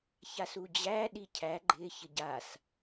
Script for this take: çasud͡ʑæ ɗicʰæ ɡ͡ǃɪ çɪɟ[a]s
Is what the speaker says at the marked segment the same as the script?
yes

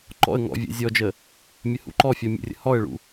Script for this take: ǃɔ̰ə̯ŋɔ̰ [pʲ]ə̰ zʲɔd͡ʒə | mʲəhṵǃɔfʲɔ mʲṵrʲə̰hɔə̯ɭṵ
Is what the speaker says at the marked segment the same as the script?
no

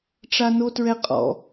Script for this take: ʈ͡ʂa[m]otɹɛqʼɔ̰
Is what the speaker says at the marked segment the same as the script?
no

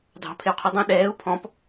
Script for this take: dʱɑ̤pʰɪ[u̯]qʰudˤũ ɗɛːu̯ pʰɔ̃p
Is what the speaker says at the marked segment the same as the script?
yes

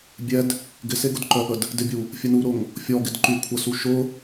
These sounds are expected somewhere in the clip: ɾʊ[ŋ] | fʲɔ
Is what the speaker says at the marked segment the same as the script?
yes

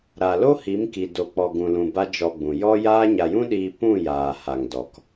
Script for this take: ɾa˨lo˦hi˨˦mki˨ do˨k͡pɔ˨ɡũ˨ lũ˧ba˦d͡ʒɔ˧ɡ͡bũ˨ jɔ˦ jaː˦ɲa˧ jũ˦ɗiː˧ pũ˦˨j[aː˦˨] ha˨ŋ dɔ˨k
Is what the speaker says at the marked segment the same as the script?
no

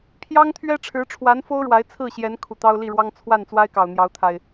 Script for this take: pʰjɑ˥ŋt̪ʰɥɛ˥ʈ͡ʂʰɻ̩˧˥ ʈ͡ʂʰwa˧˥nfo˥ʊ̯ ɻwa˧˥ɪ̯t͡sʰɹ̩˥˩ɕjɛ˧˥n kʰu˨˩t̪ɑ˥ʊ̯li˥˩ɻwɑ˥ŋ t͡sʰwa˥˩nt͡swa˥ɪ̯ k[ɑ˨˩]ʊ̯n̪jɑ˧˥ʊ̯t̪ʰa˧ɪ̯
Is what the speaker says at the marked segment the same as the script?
yes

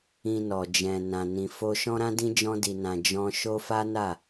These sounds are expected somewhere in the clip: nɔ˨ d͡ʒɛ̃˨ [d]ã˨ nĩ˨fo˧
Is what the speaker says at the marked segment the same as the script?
no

